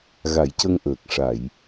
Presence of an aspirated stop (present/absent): absent